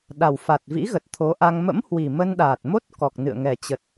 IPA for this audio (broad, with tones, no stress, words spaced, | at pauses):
ɗa˨˩wfa˨˩t̚vḭ˧˥ ɣə˨˩t̚ t̪ʰo˨˦ʔa˧ŋ mə̰˧˥mhwi˨˩ mə˧nɗaː˨˩t̚mo˦˥t̚kɔ˨˩k̚ nɨ̰˧˨ə̯ŋɛ˨˩t͡ɕə˨˩t̚